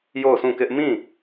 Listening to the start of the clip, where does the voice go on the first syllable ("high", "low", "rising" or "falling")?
falling